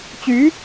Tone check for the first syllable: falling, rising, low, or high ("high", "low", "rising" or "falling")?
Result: rising